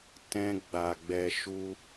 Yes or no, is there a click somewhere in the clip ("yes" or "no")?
no